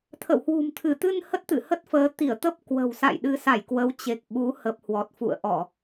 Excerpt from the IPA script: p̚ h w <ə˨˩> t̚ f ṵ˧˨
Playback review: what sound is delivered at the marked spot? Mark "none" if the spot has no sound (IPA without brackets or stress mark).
ɔ˨˩